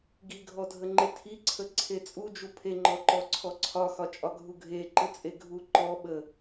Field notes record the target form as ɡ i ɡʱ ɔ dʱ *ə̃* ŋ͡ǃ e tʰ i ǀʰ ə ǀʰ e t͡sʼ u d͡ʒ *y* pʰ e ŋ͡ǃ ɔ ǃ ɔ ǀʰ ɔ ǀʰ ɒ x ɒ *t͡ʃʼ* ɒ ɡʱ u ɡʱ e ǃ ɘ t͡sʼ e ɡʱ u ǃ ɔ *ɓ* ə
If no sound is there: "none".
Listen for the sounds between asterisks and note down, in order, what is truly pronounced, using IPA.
ə, u, t͡ʃʼ, ɓ

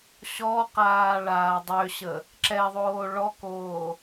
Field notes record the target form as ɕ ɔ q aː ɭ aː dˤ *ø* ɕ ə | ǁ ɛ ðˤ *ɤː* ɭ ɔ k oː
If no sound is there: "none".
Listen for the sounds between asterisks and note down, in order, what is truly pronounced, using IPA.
ø, oː

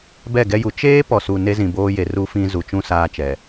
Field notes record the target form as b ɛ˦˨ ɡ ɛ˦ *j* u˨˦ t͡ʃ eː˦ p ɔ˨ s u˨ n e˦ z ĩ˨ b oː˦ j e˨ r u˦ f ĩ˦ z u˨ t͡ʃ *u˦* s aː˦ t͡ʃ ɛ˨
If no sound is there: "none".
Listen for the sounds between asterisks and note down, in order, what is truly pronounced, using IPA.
j, ũ˦

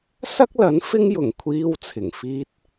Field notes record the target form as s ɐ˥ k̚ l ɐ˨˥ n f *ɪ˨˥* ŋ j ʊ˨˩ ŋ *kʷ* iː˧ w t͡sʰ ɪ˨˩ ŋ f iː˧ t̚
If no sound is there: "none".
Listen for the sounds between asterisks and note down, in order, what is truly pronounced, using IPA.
ɪ˥, kʷʰ

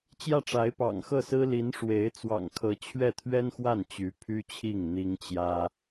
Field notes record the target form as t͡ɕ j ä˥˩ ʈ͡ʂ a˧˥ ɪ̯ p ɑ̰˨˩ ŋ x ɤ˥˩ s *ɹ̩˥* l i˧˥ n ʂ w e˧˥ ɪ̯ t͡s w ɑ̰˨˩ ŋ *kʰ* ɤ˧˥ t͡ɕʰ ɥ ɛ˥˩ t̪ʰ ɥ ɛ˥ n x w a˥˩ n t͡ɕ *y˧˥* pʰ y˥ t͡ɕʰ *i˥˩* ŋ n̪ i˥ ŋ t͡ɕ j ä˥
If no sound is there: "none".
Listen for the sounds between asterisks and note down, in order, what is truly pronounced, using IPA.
ɹ̩˥, kʰ, y˧˥, i˥˩

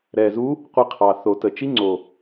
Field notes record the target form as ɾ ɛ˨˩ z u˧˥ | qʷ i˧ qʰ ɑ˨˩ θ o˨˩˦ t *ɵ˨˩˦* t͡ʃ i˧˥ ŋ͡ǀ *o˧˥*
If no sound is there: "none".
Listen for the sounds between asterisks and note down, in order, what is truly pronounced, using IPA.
ə˨˩˦, o˨˩

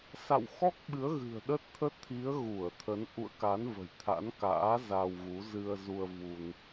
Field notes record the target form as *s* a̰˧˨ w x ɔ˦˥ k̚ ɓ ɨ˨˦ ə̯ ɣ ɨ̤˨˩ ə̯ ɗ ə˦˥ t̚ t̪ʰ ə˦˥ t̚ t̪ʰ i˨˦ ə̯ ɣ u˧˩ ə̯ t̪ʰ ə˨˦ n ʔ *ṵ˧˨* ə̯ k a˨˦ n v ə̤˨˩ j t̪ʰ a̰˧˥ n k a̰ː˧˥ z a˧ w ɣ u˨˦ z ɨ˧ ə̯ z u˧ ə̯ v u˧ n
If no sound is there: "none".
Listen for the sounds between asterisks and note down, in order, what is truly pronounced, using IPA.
s, ṵ˧˨

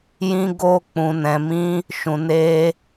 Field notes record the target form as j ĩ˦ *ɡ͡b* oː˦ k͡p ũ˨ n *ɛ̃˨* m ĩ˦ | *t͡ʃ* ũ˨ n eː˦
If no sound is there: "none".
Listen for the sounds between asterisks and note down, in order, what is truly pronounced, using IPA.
ɡ, ɛ̃˨, ʃ

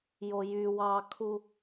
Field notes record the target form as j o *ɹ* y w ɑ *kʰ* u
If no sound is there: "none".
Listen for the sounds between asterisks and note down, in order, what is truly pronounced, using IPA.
j, kʰ

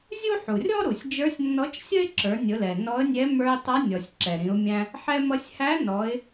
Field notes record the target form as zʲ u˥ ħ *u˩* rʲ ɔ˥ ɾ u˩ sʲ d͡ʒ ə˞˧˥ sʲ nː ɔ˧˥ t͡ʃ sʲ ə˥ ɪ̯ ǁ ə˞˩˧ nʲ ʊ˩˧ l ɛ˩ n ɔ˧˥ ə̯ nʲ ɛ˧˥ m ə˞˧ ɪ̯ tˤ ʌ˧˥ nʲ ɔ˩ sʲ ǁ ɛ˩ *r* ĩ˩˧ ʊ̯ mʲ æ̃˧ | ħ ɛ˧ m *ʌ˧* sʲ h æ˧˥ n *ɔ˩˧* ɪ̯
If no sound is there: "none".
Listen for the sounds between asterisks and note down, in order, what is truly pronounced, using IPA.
u˩, ɾ, ʌ˧, ɔ˩˧

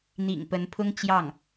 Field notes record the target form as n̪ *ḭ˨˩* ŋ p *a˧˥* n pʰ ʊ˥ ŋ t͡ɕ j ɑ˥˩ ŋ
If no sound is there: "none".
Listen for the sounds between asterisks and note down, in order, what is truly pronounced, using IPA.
ḭ˨˩, ə˧˥

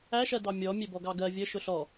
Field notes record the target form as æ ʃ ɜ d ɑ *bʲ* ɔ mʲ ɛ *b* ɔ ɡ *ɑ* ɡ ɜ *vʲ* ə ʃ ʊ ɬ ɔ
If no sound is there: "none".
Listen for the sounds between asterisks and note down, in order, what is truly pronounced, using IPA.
mʲ, b, ɑ, vʲ

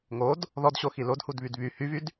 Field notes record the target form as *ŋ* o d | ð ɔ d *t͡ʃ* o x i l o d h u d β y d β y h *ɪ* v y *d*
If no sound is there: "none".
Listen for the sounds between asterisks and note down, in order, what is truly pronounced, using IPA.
ŋ, ɕ, y, d

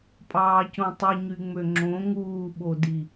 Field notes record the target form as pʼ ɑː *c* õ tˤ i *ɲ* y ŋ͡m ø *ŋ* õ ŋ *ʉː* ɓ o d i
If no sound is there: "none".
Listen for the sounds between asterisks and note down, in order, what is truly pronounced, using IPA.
c, ɲ, ŋ͡ǁ, uː

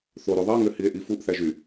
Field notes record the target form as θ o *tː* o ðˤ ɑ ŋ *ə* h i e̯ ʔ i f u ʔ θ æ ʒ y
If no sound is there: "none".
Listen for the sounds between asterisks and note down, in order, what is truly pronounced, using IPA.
ɾ, ø

